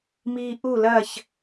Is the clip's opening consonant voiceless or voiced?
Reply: voiced